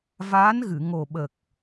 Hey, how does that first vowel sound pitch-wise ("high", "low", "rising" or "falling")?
rising